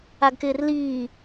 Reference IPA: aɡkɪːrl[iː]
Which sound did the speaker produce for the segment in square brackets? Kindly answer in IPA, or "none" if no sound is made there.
iː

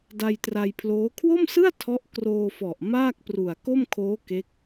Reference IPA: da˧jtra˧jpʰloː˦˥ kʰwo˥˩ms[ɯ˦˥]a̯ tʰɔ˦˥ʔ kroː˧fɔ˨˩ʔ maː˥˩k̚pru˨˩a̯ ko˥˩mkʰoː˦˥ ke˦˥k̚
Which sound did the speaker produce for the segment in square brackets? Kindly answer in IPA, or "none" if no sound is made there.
ɯ˥˩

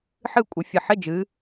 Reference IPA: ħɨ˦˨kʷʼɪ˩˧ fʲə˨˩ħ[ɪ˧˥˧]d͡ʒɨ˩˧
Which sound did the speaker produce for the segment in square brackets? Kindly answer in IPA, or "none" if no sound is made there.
ɪ˧˥˧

